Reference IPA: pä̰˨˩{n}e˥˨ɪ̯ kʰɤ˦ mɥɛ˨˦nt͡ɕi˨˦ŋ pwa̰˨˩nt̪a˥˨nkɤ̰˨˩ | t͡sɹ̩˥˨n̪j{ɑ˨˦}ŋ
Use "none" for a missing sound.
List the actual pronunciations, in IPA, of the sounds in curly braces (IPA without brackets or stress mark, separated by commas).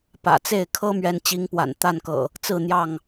t͡s, ɑ˥˨